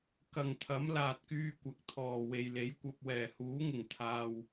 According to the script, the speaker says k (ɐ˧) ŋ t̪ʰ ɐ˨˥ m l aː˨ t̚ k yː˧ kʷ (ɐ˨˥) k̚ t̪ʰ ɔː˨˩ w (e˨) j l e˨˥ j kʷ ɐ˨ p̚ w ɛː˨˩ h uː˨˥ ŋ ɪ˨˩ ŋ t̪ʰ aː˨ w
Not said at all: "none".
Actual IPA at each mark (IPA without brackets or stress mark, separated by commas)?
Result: ɐ˨, ɐ˨˥, e˨